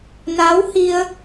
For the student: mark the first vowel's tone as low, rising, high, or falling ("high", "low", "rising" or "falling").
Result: rising